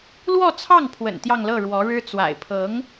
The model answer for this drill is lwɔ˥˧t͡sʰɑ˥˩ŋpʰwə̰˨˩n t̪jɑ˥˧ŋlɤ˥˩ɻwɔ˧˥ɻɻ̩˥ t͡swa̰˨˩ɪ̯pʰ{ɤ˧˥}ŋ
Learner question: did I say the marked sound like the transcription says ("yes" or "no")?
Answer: yes